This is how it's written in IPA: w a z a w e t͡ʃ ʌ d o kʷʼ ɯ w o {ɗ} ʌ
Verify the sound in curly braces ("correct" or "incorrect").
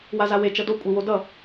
incorrect